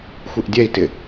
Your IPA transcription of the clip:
xʷ i ʔ dʲ ɛ i̯ t ɪ

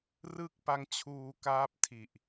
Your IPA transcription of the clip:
r ɯ˥˩ k̚ p a˦˥ ŋ t͡ɕʰ uː˧ k aː˦˥ p̚ tʰ i˨˩ ʔ

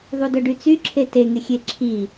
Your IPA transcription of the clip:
ðˤ u d œ ɖ y t͡s y ǁʰ e t e ŋ e xʲ e ǁʰ i

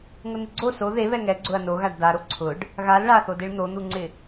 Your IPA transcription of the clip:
ŋ ʊ n ɪ ɡ͡ǀ o s o ð e β ɛ ŋ ɛ ɡ͡ǀ ʊ ɐ̯ n o ɣ a ɖ d a ɾ o ǀʰ ʊ ɖ | ɣ a l ɭ a θ o d e ɭ n̪ o n̪ u ŋ͡ǀ ɪ

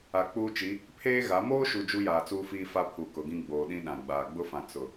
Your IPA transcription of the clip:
a˨ k͡p uː˦ t͡ʃ i˨˦ | pʰ eː˦ ɣ a˨˦ m oː˦ ʃ u˨ d͡ʒ u˦ j aː˨ t͡s uː˦ f iː˦ f a˦ pʰ u˨ k ʊ˨ ɡ ĩ˦ ɡ͡b oː˨ ɗ ĩ˦ ɗ ã˨ ɡ͡b aː˨ ɡ͡b ʊ˦ f ã˨ t͡s ʊ˨

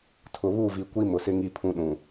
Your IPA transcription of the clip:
tʰ ʊ˨ β u˦˨ v i˨ kʷ i˦ m ʊ˨ s ɪ˦ ŋ i˦ pʰ ũ˦ ɗ ũ˨

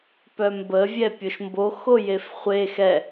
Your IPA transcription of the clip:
p œ m b ə vʲ ɛ pʲ o ʃ m b o x o j e f χʷ e x ɛ

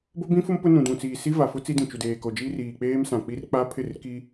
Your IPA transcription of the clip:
b o˦ b ĩ˦ f ʊ˦ m p ʊ˦ n ũ˨ d ũ˨ t͡s iː˨ s i˦ v a˨ f ʊ˦ t͡s i˦ d ĩ˨ t͡ʃ u˨ d eː˨ k o˨ d͡ʒ iː˦ r iː˨ k͡p eː˦ m s ã˨ k͡p i˦ r k͡p a˦ pʰ ɪ˦˨ r k i˦

